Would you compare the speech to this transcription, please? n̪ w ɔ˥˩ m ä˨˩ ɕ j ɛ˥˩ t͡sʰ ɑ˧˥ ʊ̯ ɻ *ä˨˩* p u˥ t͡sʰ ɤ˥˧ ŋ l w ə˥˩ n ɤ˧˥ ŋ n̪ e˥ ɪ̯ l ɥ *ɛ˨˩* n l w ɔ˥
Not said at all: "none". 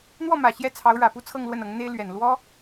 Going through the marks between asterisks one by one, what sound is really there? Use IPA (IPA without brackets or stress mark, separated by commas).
ä˨˩, ɛ˨˩